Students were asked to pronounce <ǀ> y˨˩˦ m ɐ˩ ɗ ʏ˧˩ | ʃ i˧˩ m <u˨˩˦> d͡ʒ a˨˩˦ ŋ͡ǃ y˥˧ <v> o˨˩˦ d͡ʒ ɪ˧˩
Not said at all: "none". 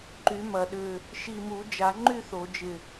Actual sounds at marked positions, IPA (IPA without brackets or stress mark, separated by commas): ǃ, u˨˩˦, θ